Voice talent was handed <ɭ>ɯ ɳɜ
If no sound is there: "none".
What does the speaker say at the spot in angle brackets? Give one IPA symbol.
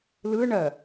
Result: l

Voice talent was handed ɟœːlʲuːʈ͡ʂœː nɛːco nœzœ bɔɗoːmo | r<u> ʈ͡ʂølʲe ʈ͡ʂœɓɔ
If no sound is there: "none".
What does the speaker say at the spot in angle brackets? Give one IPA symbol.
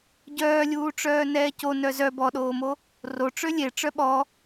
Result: o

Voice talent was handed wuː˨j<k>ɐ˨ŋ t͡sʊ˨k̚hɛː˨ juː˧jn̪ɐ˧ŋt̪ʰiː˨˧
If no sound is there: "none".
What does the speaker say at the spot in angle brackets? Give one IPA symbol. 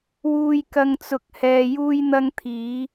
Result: k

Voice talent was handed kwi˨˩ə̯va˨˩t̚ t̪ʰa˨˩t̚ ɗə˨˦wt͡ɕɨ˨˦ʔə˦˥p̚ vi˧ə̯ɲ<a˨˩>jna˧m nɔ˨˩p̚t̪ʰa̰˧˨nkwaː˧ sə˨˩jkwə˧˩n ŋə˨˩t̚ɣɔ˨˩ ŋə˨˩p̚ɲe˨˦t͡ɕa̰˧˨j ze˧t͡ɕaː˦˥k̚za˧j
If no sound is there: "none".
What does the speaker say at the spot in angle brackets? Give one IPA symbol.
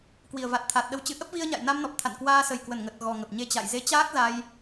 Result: a̰˧˨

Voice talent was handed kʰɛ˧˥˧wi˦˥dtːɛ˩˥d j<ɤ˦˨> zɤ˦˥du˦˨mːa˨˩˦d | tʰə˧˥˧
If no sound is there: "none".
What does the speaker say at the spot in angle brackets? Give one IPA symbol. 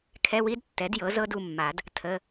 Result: ɤ˩˥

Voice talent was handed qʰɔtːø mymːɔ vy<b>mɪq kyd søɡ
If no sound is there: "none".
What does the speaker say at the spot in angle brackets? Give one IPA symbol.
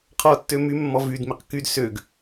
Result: d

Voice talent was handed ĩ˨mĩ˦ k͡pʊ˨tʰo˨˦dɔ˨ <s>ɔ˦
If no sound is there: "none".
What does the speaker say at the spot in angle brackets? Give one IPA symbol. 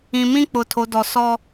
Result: s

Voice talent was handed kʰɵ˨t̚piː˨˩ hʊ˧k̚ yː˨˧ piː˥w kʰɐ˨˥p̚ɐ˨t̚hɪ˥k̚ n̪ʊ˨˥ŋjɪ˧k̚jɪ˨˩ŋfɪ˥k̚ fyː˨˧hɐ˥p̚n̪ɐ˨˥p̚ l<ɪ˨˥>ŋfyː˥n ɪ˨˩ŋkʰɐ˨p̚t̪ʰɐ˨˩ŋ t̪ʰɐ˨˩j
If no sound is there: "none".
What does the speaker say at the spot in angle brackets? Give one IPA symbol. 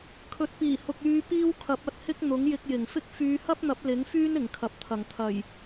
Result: ɪ˨˥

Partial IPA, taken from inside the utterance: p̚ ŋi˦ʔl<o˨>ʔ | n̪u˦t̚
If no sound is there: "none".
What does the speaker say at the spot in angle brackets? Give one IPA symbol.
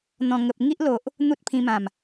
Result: o˨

